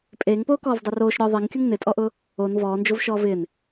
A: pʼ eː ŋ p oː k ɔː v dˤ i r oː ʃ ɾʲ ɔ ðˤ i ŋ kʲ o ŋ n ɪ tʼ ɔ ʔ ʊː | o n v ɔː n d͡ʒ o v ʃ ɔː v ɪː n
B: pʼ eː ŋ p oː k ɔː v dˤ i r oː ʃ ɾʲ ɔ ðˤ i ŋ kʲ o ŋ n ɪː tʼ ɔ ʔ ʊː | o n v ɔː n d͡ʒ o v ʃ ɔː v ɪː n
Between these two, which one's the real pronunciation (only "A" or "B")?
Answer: A